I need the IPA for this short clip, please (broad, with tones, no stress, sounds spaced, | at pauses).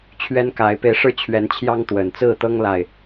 t͡ɕʰ ɥ ɛ˦ n k a˨˦ ɪ̯ p e˧ ɪ̯ ʂ ɻ̩˦ t͡ɕʰ ɥ ɛ˨˦ n t͡ɕʰ j ɑ˦ ŋ t̪ w ə˨˩ n t͡s ɹ̩˥˨ t̪ ɤ˦ ŋ l a˥˨ ɪ̯